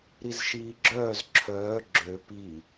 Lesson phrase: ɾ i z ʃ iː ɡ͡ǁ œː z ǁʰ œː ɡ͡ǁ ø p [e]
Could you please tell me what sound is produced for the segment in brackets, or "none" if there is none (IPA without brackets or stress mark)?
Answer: i